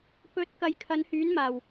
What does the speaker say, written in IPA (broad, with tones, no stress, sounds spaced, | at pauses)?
p ɵ˧ t̚ k ɐ˧ j kʰ ɐ˨˧ n h yː˨˥ n m aː˨˩ w